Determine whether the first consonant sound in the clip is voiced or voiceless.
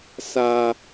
voiceless